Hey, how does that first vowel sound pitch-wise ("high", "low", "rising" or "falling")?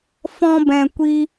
high